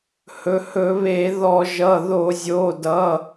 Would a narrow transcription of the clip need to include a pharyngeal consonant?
no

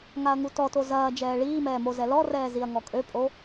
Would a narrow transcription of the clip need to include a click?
no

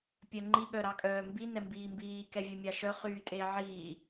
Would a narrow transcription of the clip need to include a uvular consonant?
yes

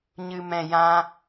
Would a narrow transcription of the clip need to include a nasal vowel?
yes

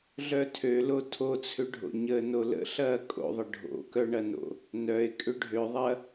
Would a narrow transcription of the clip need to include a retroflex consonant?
yes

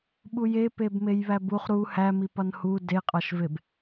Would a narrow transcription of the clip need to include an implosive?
yes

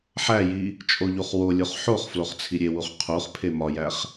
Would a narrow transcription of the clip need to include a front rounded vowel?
no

